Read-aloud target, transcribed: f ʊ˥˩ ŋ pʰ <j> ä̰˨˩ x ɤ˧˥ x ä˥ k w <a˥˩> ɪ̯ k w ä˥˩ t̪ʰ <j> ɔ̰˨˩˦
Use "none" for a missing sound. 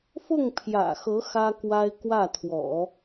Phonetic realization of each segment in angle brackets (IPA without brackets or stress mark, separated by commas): j, a˥, w